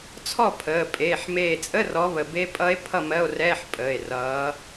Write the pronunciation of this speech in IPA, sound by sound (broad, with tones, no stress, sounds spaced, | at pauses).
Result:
t͡sʰ ɔ˥˨ pʰ əː˩˧˩ pʼ eː˩˧˩ ħ m eː˧˩ t͡sʼ ə˧˥˧ r ɔ˨˦ β ə˧˩ b e˦˥ pʼ ʌ˦˥ e̯ pʰ ʌ˥˨ m ɜ˧˥˧ o̯ r ɛː˧˥˧ ħ pʼ əː˩˧˩ e̯ r ʌː˨˦